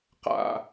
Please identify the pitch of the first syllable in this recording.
low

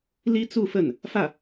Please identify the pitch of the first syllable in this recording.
high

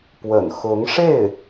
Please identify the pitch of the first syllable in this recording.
low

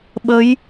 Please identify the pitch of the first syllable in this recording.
rising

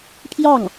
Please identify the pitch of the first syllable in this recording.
falling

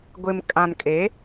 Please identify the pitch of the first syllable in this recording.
low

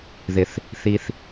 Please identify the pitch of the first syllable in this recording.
low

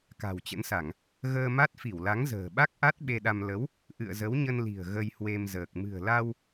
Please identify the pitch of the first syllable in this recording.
low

